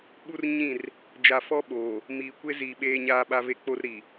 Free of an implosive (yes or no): no